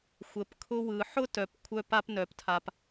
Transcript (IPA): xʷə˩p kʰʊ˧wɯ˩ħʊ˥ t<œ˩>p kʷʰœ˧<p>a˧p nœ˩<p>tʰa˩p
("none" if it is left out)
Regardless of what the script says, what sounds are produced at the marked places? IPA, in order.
œ˩, p, p

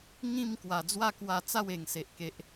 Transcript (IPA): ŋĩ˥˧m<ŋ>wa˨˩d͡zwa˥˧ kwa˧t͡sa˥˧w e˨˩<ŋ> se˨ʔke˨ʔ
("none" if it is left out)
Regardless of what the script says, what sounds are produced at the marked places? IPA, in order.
k, ŋ

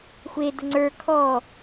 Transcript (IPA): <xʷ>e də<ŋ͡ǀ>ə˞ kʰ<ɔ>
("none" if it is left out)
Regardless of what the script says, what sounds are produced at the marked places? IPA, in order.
xʷ, ŋ͡ǀ, ɔ

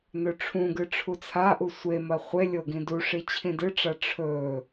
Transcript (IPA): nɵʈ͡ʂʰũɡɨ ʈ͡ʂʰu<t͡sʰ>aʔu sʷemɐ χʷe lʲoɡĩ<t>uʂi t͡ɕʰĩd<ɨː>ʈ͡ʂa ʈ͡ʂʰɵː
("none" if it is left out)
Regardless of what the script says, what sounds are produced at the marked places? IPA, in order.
t͡sʰ, d, ɨ

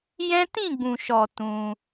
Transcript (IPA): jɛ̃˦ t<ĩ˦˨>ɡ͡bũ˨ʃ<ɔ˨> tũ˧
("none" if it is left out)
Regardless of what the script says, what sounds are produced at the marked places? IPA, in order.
ĩ˦˨, ɔ˨

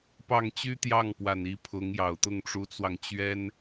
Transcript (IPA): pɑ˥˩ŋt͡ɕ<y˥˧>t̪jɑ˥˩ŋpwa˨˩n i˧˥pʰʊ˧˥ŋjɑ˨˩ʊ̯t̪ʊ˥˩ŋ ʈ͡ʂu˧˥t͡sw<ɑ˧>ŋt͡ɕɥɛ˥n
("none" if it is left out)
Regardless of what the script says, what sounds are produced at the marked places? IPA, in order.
y˥, ɑ˧

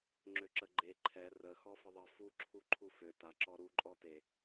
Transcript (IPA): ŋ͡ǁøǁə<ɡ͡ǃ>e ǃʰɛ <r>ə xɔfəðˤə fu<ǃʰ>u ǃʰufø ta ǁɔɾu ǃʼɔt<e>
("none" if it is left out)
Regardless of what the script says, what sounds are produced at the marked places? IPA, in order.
ɡ͡ǃ, r, ǁʰ, e

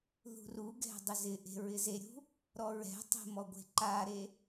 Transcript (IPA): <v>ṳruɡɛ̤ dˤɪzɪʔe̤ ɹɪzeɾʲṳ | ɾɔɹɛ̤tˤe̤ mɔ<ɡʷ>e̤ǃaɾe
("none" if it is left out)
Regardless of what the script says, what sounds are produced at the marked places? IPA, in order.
ð, ɡʷ

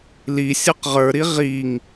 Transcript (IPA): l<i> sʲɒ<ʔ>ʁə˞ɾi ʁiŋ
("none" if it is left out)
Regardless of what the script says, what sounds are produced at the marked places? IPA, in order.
i, q

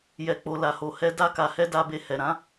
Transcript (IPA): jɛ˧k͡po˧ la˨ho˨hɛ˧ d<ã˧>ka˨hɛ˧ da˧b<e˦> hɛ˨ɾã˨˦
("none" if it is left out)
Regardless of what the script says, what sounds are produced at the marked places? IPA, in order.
a˧, e˧

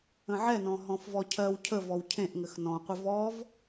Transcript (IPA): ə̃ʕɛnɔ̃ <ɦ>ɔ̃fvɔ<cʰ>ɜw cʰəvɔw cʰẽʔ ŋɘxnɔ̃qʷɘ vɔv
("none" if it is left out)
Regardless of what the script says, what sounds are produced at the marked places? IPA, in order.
ɦ, cʰ

